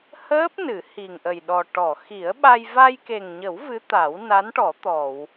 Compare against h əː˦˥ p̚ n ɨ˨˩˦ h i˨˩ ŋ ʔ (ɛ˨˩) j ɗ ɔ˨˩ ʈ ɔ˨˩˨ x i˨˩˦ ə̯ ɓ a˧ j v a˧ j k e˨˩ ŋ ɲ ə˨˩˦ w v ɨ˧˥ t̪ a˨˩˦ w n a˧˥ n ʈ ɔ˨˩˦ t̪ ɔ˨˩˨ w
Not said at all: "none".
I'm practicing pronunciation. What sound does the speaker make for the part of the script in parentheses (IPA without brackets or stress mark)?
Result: ə˨˩